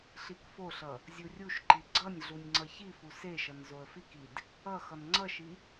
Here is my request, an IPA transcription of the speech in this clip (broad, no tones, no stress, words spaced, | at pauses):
ɬikfoɬʌ | zʲurʲuʃǃi ɡ͡ǀʌnʲɮunʲ ŋ͡ǀʌçifu seʃʌn zoə̯fikid | ʌ xʌnŋ͡ǀʌʃi